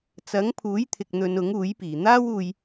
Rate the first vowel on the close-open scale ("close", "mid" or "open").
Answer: open